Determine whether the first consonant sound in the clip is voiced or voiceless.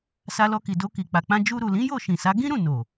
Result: voiceless